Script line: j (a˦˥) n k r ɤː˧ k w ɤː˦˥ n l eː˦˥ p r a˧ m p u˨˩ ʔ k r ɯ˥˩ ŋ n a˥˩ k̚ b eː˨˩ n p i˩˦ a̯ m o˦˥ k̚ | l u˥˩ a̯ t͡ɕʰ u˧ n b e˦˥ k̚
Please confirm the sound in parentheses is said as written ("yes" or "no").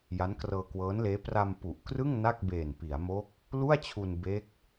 yes